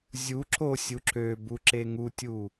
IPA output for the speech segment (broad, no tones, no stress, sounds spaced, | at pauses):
zʲ u ǁ o sʲ u ǁ ø b u ǁ e ŋ u tʲ u